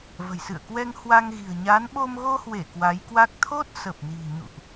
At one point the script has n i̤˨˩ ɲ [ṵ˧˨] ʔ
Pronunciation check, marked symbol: correct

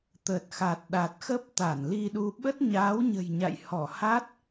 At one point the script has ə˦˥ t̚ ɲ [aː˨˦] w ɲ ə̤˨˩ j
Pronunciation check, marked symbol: correct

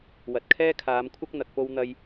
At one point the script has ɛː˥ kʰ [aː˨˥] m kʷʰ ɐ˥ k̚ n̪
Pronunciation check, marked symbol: incorrect: aː˨˧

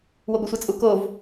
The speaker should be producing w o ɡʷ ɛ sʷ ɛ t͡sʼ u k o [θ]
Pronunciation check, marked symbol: incorrect: v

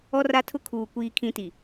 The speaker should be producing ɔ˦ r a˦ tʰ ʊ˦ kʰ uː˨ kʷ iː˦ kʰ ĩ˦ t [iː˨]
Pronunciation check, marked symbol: incorrect: i˨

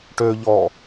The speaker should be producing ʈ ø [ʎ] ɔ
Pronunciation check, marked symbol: correct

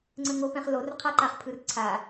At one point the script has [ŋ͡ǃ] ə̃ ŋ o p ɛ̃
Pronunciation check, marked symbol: incorrect: ŋ͡ǀ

